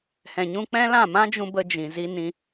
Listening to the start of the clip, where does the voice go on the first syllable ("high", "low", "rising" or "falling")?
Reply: low